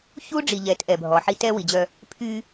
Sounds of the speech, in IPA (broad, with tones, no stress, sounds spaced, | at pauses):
ç u˦ ɖ͡ʐ i˨ ʎ ɛ˨˦ t ʔ ɛ˨ bʱ ɔ˨ ħ i˦ t ɛ˦ w i˨ d͡ʑ œ˦ | pʰ y˦